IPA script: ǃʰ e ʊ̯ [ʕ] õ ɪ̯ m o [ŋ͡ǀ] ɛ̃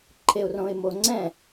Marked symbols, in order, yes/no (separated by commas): no, yes